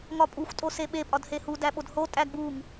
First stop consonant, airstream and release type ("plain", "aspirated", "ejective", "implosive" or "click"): ejective